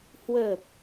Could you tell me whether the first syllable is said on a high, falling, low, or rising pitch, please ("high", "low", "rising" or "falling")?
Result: low